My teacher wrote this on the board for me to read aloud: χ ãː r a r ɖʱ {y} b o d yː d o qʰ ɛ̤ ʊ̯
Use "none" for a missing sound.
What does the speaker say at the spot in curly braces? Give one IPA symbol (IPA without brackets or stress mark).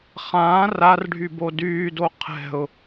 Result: y